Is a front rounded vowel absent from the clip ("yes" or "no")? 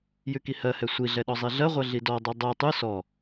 yes